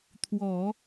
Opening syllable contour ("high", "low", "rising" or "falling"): low